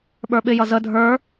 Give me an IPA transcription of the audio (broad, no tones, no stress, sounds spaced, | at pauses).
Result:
ɓ ə˞ ɓ ɪ j ʌ z ə dʱ ə˞